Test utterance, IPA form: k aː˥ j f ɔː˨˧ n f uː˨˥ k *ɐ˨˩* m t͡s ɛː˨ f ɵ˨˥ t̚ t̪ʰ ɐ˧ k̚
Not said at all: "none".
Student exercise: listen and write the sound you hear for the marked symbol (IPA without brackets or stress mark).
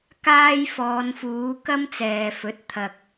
ɐ˥